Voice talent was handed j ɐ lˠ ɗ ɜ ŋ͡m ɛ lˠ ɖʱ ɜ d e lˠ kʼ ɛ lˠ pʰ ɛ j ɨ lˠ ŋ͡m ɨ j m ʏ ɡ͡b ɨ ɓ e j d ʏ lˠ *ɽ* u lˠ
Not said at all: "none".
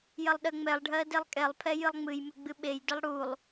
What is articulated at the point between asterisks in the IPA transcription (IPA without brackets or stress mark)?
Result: ɽ